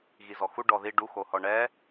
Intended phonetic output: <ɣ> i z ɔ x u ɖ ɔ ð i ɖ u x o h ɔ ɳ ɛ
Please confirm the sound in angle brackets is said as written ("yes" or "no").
yes